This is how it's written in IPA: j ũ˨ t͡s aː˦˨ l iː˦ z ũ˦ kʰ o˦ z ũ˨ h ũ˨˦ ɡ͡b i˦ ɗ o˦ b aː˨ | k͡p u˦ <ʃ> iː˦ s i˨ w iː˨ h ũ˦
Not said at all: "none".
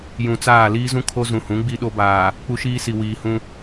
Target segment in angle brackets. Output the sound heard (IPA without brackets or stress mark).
ʃ